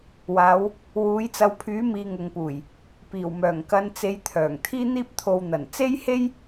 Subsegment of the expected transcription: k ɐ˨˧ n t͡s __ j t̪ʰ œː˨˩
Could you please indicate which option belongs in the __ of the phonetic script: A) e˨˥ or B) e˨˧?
A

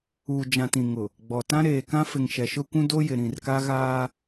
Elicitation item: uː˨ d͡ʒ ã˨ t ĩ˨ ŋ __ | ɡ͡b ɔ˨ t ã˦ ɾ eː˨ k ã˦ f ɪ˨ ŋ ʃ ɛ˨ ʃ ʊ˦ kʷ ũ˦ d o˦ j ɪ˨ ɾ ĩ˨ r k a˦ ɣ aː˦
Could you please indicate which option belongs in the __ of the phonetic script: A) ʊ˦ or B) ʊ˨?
B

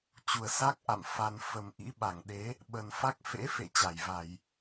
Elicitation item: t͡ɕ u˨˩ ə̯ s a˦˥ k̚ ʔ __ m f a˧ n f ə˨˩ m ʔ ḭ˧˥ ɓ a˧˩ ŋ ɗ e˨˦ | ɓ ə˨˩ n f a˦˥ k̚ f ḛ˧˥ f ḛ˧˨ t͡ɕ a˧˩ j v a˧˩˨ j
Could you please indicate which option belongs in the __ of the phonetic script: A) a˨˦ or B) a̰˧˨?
B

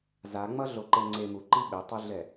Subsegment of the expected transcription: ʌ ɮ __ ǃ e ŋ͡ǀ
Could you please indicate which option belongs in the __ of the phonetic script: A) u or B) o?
B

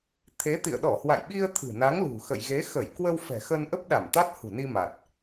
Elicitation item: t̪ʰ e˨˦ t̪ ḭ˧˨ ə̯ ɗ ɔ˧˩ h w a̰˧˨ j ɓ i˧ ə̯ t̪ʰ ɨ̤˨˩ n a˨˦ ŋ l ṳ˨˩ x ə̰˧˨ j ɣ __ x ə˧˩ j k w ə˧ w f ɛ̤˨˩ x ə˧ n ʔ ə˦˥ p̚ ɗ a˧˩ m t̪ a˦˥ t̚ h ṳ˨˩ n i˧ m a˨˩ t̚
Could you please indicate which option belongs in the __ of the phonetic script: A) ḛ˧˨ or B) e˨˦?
B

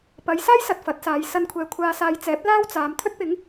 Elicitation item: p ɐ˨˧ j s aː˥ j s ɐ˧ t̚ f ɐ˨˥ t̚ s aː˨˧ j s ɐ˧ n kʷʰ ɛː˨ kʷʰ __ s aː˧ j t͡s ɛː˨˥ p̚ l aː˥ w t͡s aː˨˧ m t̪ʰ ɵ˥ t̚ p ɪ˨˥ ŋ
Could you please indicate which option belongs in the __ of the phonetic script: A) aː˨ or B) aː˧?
B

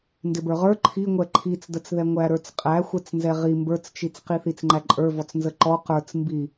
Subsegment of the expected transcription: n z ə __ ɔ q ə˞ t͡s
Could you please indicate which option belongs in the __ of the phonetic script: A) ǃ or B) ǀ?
A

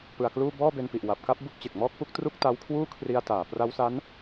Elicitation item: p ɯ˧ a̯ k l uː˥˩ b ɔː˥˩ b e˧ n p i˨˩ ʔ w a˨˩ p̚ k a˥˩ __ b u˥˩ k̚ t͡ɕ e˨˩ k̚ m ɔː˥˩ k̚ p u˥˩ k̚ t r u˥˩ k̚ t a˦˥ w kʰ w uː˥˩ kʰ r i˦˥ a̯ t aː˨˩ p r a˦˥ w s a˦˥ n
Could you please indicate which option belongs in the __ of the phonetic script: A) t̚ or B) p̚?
B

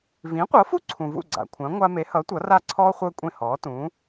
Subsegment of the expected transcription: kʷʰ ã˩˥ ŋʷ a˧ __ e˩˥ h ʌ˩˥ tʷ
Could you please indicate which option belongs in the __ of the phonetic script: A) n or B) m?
B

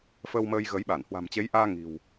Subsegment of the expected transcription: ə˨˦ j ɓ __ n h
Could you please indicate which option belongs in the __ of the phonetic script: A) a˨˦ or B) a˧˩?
B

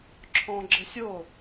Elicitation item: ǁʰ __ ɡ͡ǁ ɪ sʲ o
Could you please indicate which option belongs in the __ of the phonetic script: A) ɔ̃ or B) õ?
A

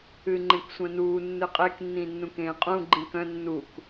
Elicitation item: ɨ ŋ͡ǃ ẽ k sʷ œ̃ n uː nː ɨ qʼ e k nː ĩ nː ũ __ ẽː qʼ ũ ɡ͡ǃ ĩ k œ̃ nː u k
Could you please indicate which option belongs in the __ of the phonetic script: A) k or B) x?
A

